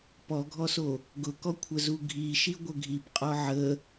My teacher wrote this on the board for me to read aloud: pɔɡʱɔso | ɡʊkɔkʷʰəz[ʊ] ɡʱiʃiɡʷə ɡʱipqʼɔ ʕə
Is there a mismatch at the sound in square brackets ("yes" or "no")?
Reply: yes